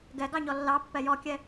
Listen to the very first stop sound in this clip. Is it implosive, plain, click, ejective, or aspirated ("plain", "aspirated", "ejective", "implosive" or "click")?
plain